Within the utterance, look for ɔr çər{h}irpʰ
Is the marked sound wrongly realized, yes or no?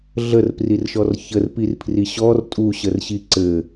yes